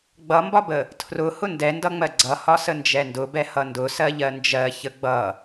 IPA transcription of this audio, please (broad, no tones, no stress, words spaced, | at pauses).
ɡ͡bʌmbɒbə | tʰrʊ hʊndɛndʌŋ͡mɜ ɡ͡ǀʌhɒ sənd͡ʒɛndʊbɛ hʌndʊ sɜʎɜnd͡ʒɜ çəɡ͡bʌ